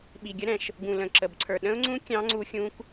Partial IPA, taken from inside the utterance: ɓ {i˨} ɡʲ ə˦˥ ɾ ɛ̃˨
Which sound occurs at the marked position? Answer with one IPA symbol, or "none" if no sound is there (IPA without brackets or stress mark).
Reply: i˨